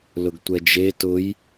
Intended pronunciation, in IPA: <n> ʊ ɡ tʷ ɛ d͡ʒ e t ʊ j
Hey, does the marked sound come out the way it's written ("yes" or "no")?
no